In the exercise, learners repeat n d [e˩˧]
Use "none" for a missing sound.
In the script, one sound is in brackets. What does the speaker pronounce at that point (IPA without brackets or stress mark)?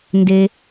e˦